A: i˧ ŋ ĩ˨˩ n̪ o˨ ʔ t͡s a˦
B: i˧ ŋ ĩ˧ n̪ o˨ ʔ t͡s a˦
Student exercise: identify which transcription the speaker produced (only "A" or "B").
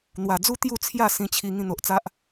B